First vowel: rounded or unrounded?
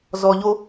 rounded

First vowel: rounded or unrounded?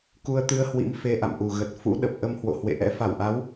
rounded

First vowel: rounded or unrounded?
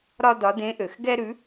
rounded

